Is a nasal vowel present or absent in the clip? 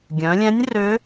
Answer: present